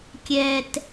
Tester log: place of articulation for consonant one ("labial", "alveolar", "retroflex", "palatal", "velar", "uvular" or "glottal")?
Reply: velar